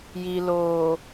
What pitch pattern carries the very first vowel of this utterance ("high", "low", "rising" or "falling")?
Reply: low